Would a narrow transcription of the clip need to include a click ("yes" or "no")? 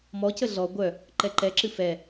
yes